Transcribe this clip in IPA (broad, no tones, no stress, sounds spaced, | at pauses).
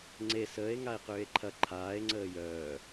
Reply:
ŋ͡ǀ e s əː e̯ ŋ a e̯ q ʏː e̯ ǃʰ ɐ ǃʰ aː e̯ ŋ͡ǀ əː j œː